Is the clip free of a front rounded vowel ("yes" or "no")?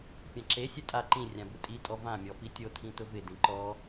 yes